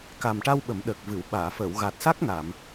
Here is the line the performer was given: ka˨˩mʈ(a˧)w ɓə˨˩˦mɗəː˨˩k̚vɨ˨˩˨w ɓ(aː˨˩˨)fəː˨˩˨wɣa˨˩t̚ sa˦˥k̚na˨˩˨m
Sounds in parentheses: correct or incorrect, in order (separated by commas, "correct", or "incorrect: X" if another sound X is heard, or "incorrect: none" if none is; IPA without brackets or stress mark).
correct, correct